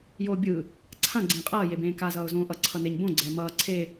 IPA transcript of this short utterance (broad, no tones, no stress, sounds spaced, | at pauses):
j oː bʲ ɯ | ǀʰ ã ɡ͡ǀ ẽː qʼ ʌː j e b ẽː k a z ʌː ʊ̯ z õː ʔ ʌ ǀʰ ʌ n e ɲ b õ ɡ͡ǀ ɛː m ʌː ǀʰ e